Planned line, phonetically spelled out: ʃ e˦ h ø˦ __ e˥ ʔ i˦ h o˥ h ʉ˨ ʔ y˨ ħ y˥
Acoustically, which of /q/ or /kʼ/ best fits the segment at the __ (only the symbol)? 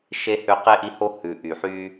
q